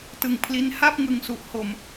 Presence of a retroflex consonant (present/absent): absent